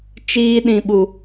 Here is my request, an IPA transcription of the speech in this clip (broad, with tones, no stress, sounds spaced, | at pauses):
t͡ʃ iː˧ ɗ ĩ˨ ɓ u˨